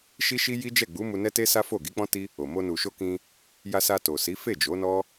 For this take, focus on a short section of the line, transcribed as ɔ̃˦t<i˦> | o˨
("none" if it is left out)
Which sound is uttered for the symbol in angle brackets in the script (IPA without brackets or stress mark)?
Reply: i˦